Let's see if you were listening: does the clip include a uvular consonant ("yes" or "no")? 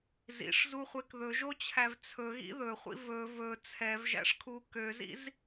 yes